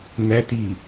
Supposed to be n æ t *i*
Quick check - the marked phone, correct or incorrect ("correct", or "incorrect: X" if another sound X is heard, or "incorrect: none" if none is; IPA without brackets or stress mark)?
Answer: correct